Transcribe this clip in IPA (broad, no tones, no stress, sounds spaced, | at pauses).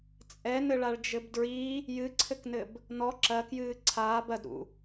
t͡sʼ ɛ n ɘ ɭ a ɭ d͡ʒ ɘ b d ɹ i | j ɨ ǀʰ ɘ k n ɘ b | n ɔ ǁ ɐ k j ɨː ǀʰ aː b ɐ d ɾ ṵ